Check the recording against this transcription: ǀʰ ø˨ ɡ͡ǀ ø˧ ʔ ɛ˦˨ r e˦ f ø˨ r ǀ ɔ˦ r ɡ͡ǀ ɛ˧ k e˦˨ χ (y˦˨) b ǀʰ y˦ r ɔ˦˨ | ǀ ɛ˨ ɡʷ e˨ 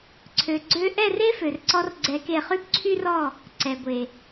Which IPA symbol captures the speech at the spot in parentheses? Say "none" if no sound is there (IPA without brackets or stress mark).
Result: y˦